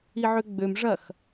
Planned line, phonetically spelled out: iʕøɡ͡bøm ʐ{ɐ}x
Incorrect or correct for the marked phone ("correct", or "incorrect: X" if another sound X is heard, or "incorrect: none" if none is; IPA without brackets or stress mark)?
correct